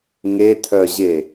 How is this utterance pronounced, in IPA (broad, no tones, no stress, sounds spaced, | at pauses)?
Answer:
ŋ e tʰ œ ʑ e